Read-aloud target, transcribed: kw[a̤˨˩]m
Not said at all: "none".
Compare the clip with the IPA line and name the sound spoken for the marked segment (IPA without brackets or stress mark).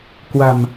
a̤˨˩